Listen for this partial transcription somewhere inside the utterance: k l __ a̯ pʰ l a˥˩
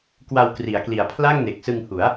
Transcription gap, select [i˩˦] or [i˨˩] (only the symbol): i˨˩